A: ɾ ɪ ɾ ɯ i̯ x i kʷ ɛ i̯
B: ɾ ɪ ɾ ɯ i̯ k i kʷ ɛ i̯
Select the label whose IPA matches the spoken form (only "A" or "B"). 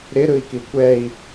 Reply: B